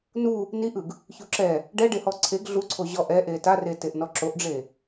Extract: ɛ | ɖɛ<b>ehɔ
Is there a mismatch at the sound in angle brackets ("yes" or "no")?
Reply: yes